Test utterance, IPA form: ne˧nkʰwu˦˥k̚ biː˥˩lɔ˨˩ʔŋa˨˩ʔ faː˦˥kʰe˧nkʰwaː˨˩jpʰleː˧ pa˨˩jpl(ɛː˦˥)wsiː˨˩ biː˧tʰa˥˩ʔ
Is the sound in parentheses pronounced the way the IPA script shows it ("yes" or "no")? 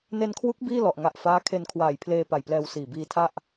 no